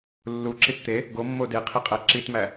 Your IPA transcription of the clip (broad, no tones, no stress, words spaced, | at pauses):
lːuǁit t̪e | ɡomːo deqʰiqʼæ ǁitmæ